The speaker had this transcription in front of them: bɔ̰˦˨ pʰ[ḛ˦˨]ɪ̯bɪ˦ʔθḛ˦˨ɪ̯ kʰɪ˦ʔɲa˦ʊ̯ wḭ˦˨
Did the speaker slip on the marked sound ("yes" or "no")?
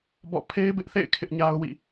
yes